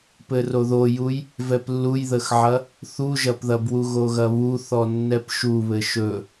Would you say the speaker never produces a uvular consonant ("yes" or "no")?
yes